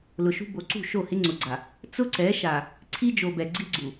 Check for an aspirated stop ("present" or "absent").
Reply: present